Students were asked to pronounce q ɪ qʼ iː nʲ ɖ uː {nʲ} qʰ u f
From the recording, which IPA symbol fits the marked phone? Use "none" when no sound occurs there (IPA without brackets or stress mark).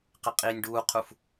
none